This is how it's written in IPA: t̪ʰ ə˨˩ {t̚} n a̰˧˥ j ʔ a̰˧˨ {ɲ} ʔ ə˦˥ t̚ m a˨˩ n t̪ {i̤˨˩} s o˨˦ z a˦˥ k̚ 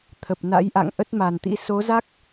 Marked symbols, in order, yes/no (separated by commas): no, no, no